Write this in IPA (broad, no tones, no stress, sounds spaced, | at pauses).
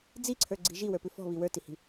d͡z i ǀʰ ə˞ ɡ͡ǀ i̤ ʒ i w ə˞ p ʉ f ɔ̤ β i w ə˞ t i h i̤